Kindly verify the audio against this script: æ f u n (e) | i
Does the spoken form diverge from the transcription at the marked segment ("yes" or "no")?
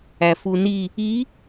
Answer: yes